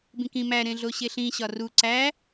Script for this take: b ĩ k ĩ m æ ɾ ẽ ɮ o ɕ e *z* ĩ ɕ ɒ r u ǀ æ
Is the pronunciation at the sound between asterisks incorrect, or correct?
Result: incorrect